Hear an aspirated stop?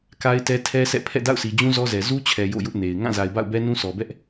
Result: yes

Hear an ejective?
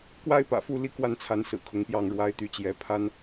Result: no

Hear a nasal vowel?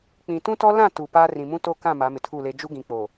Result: yes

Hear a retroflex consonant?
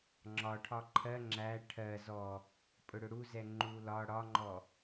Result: yes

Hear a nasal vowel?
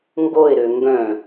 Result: yes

